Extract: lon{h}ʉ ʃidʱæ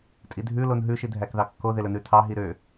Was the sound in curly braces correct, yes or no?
no